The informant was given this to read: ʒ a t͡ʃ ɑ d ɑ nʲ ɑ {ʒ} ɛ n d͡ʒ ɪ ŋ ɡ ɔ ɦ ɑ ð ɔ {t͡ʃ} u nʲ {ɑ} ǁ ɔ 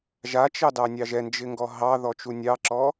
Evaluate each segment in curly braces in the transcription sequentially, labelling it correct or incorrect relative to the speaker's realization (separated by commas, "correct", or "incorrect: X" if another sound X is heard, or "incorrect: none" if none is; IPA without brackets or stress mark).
correct, correct, correct